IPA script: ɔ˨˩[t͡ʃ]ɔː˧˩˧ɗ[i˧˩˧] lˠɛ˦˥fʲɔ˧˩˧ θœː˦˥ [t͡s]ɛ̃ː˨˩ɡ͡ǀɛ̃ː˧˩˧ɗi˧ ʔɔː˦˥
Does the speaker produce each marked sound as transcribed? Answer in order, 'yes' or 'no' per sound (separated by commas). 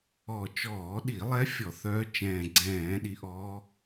yes, yes, no